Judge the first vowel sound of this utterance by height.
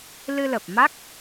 high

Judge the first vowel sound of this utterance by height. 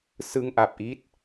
high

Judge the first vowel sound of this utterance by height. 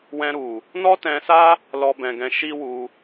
mid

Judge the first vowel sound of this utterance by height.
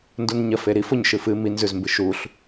high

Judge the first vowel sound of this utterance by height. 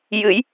high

